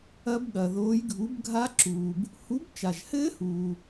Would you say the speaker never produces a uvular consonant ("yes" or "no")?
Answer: yes